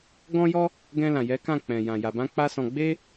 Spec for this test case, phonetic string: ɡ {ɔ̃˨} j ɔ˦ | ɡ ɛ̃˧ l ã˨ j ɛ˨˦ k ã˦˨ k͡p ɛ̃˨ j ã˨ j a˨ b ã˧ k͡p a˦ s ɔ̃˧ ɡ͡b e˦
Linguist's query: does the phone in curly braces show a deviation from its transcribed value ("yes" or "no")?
yes